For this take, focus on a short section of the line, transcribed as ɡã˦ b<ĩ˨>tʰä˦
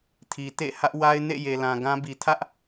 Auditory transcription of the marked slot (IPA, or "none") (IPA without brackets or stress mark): i˨